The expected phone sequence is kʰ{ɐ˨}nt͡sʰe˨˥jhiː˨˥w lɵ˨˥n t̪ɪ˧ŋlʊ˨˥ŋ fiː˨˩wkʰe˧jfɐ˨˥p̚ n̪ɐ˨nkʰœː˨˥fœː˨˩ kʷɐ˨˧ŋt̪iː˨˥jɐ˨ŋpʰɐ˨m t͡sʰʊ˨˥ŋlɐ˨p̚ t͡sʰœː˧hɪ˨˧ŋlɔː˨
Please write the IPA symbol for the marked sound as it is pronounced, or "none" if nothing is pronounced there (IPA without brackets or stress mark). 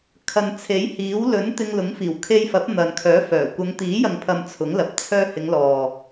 ɐ˨